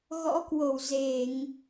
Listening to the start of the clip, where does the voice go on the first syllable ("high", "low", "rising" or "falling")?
rising